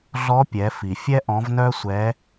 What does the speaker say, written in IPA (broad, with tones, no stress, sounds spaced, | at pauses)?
ɮ ɔ˧˥ pʲ ɛ˩˧ f i˩ fʲ ɛ˥ ʔ ɔ̃˧˥ v n œ˥ sʷ ɛ˧˥